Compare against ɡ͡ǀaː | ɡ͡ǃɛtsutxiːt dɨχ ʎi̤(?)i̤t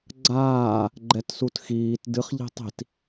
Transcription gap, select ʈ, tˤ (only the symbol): tˤ